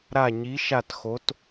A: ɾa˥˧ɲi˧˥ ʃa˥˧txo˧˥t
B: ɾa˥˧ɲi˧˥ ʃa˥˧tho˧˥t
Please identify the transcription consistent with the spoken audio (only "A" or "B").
A